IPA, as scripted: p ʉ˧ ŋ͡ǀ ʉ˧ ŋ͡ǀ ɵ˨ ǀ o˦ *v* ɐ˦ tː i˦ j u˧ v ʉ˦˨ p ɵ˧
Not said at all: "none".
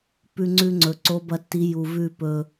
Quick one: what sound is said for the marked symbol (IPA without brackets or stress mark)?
b